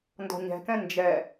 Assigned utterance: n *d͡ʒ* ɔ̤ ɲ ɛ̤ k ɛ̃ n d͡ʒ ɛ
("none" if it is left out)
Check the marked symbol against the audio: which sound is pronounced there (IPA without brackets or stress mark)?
d